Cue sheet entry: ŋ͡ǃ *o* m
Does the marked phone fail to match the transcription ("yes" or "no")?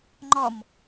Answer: yes